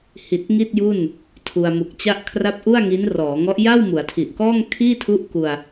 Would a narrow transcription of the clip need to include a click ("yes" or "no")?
no